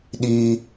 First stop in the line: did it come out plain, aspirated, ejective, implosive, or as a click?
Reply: implosive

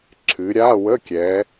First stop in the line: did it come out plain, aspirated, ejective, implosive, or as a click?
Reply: click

